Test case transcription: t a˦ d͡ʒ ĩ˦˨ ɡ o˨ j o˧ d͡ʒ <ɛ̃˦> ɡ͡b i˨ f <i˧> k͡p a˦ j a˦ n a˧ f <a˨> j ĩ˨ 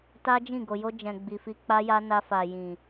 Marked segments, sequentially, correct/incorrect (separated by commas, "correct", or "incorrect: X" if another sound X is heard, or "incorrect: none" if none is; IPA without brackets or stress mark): incorrect: ɛ̃˨, correct, correct